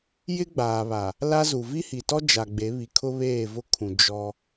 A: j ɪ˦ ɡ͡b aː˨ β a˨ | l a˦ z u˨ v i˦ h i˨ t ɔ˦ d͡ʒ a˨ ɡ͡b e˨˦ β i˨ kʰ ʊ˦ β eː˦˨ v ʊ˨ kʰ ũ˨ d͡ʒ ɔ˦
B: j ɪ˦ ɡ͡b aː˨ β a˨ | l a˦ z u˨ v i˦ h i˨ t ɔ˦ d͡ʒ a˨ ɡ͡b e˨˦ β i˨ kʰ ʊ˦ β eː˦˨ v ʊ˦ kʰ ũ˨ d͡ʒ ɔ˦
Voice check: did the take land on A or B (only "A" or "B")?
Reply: B